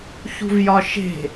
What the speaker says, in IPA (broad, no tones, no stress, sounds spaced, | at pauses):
ç ṳ v j ɒ ʃ e̤